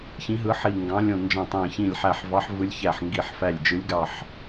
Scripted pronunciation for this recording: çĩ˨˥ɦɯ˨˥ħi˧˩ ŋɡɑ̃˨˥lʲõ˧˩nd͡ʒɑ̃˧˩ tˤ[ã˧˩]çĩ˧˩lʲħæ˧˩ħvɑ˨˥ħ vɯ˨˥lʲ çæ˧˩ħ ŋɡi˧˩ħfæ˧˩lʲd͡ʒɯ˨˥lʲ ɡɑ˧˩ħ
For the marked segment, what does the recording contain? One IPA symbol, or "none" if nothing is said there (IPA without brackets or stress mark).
æ̃˧˩